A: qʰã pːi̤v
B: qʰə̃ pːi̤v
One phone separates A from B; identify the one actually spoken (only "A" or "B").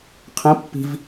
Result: B